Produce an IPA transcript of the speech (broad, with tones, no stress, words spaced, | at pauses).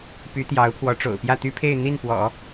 py˧˥t̪jɑ˧˥ʊ̯pʰwɔ˧˥ ʈ͡ʂo̰˨˩ʊ̯pjä˥˩t̪y˥pʰe˥˧ɪ̯ n̪i˥˩npwɔ̰˨˩˦